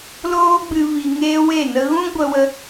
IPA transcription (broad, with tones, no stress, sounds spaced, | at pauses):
l oː˦ ɡ͡b ɨ˧ v i˧ ŋ eː˦ w e˦˨ n ə˦ ɣ ũ˦ ɡʷ ə˧ w ə˧